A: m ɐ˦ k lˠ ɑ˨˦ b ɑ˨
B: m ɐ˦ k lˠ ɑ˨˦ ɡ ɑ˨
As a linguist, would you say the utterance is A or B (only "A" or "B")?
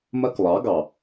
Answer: B